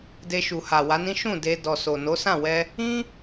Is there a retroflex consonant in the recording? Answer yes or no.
no